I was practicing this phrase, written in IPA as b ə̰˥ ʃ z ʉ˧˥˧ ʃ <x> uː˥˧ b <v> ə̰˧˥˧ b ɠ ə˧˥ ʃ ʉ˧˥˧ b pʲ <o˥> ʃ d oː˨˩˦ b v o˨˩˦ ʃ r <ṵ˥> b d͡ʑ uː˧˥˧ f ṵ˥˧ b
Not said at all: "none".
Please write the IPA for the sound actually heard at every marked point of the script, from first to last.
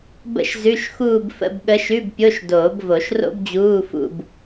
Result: x, f, o˧˥˧, o̰˥

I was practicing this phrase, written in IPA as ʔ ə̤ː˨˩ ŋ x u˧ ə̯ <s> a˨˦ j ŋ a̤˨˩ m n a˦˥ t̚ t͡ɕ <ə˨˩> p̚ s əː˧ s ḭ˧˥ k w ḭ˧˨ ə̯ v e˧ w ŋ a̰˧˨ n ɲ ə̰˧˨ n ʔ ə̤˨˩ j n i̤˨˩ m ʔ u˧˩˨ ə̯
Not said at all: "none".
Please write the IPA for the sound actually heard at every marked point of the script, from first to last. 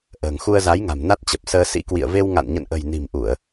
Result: z, ə˨˩

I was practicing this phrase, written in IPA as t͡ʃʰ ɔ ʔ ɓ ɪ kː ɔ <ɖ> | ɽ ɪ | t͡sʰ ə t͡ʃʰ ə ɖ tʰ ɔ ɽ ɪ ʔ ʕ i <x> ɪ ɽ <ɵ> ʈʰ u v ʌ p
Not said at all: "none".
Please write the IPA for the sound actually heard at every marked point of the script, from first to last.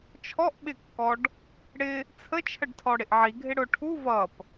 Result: ɖ, ɡʱ, ʊ

